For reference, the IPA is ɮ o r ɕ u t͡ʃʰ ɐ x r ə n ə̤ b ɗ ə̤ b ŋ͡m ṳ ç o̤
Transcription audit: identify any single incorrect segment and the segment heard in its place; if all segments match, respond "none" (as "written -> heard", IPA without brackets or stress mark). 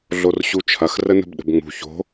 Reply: none